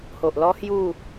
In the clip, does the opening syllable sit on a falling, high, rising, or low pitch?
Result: low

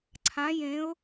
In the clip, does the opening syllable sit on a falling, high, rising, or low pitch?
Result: rising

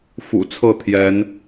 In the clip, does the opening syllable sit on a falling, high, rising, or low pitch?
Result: low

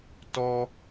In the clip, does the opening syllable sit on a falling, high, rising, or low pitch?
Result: high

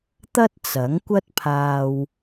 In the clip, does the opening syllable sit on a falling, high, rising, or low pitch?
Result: high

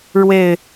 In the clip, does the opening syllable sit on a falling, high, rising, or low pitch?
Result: low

